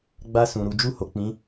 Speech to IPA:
ɡ͡b a˧ s ũ˨ ɾ u˨˦ d͡ʒ u˦˨ h o˨ k͡p ĩ˨˦

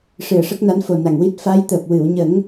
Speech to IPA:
ʂ ɨ˨˩ ə̯ ʂ ə˦˥ k̚ n a˧˥ n f o˨˩ n a˨˩ ŋ w i˦˥ t̚ f a˧˥ j t̪ əː˨˩ p̚ w ɨ˨˩˨ w ɲ ə˨˩˦ ŋ

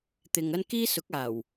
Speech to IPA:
t̪ ɪ˨ ŋ ɐ˥ n k iː˥ s ʊ˨˥ k̚ aː˨˩ w

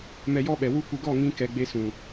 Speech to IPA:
m ɛ˧ j ɔ˦ ɓ ɛ˨ w u˦ kʷ ɨ˧ ɡ ɔ˦˨ ŋ ĩ˧ k ɛ˨ ɡ͡b e˧ s ũ˨

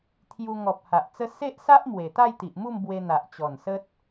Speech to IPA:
t̪ʰ j u˧ ŋ ɔ˨ p̚ h a˨ ʔ t͡s ə˦ s e˦ ʔ s a˦ ʔ m w e˨˩ t̪ a˥˧ j t̪ i˨ ʔ m u˥˧ m b w e˧ n̪ a˨ ʔ t͡ɕ ɔ˨˩ n s ə˦ t̚

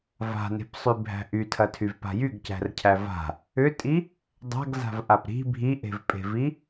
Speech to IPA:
v a̤ n e̤ p sˤ y bʱ æ̤ ʔ y tʰ ɐ tʰ y v p a̤ j y ɡ c æ̤ r cʰ æ v a̤ | ʏ tʼ i | dˤ a̤ ɡ z a̤ v ʔ a p ɾ i̤ bʱ i ʔ e̤ v pʼ e̤ v i

